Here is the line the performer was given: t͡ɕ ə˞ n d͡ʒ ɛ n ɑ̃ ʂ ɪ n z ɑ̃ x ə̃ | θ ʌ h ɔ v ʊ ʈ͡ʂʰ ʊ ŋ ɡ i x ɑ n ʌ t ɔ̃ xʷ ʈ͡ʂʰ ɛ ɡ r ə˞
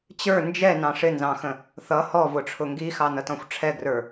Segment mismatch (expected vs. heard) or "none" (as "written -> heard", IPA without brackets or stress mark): none